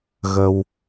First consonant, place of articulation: velar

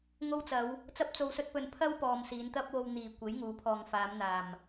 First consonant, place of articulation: velar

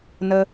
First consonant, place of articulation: alveolar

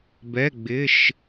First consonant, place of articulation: labial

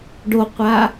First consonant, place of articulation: retroflex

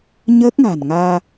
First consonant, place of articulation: palatal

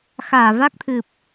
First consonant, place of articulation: velar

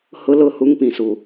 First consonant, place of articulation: glottal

